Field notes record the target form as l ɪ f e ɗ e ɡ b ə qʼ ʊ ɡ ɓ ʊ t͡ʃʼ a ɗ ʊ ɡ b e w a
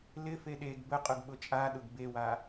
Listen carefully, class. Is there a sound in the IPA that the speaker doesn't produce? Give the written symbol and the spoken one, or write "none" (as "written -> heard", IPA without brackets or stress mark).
none